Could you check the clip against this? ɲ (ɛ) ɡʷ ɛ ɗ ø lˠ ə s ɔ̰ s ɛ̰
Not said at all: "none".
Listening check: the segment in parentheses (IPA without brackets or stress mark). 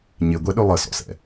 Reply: ɪ